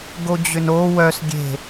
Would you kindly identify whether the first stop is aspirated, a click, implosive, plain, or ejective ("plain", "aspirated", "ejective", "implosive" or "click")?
plain